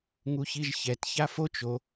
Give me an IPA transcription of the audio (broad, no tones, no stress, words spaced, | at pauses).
ŋuçiʒçɛt çafot͡ʃ o